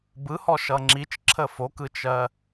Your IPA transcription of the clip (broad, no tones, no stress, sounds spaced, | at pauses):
b ɯ h ɔ ʃ ʌ ŋ͡ǁ i t͡ʃ ǁʰ ə f o k ɯ t͡ʃ ɜ